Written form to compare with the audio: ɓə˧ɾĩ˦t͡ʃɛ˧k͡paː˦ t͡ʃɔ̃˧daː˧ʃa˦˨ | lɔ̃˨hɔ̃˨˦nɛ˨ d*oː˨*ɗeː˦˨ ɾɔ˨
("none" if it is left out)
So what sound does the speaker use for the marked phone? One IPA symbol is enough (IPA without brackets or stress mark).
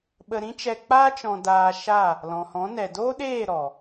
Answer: oː˦